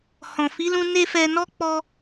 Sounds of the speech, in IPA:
hɔ̃˨fi˨˦lũ˧ ne˧ fɛ˧nɔ˦ k͡pɔ˦

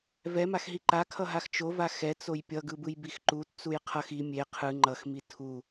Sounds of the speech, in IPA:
vɛmaxɦi ǃakʰʌɦax t͡ʃova xɛt͡soj pʲʌɡɯbɯjbix ǃutt͡suj qʰʌx i mʲe qʰɯ ŋ͡ǃʌxmi tʰu

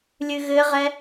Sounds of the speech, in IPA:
lʲɨɣɘʁɛ

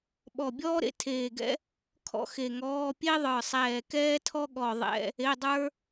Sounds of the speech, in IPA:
ɓɔ˧˩bʲɔː˥ɾḛ˥ tʰeː˧˩ɡɛ̰˥ | kʰɔ̰˥xe˧˩ŋɔː˧˥˧ pʲe˥ðˤə˞˧˩sˤɛː˧˩ kɛː˥tʰɔ˥ ɠɔ˧˩ ðˤɛ̰˧˥˧ | e˧˥˧dˤə˞˥

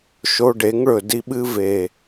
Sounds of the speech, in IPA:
ʃo˧ɖe˨˦ŋɭɵ˨ di˧ɓɨ˧ve˨

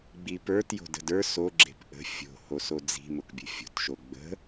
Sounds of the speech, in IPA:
ɡ͡bipə˞t jo̤də̤də˞ so ɡ͡ǁe̤pʔə̤ fʲo̤ hosod͡zi̤ mʊkbʲə̤fʲo̤t ʃoɡ͡bə̤

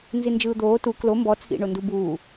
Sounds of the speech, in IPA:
nzind͡ʒɯːd̪oː tu klo mbɔ t͡sʰḭɳo ndubuː

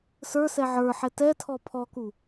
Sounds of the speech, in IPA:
sə˞sɛ ʕə˞ħɛ tɛtʰɔ pʰɔku

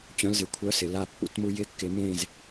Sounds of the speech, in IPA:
t͡ɕœ̃˧˥˧lzɪ˧˥ kʷʰœ˧˥˧sɪ˩˧ la˥˧pːṵ˥tmu˥ jɪ˥kːɪ˧˥mẽ˥˧z

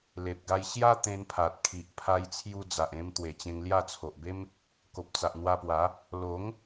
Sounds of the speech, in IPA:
le˨p̚ɡa˧j ɕja˦ t̪ẽ˧npʰa˨t̚kʰi˨ʔ pʰa˧jt͡sʰju˧d͡za˨ʔẽ˧m t̪we˨˩t͡ɕẽ˧ŋlja˥˧ t͡sʰo˨ʔbe˦m | ko˨p̚t͡sa˨ʔn̪wa˧pwa˨˦ | lo˨˦ŋ

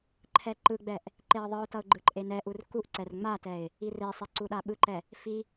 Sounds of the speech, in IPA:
ǃʰɛǃɯɡ͡bɛʔ | ǃeə̯ðˤɯʊ̯tʌʊ̯ ɡ͡ǃɯǃʼenɛʔur kuʔǀɛr ŋ͡matɛɪ̯ | iresˤe ǀuɗaɓɯǃɛ | fi

